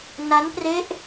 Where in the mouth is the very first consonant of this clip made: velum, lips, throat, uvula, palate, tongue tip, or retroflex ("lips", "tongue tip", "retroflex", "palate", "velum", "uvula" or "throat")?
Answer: tongue tip